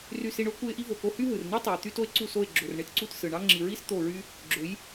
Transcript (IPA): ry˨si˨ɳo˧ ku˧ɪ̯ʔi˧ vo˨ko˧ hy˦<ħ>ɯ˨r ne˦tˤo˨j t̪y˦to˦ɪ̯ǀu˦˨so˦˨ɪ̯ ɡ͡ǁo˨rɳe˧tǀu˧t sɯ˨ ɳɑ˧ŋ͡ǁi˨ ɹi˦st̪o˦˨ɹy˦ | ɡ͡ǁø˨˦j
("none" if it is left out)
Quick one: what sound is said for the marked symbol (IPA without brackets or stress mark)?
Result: ɦ